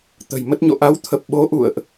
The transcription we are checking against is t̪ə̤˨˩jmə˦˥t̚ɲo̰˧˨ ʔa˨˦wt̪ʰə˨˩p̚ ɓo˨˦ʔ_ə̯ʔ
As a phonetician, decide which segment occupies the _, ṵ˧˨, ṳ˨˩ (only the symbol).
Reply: ṵ˧˨